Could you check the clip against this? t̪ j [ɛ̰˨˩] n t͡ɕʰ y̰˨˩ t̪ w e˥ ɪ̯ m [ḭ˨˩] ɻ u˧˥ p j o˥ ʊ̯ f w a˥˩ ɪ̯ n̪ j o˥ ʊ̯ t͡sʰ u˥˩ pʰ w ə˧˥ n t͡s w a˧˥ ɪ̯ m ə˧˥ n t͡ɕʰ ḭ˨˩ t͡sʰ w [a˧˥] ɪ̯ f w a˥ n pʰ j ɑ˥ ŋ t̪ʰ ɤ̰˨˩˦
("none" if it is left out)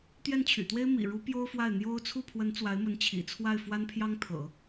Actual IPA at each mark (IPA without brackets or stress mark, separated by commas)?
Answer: ɛ˥˩, ḭ˨˩, a˥˩